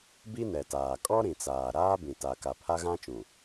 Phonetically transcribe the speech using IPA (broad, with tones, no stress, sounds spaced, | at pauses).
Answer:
b i˦ n ɛ˨ t aː˨ kʼ ɔ˦ ɾ ĩ˨ t͡s aː˨ ɾ aː˦ b ĩ˨ t a˨ k a˨ pʰ a˦ ɣ ã˦ t͡ʃ ũ˨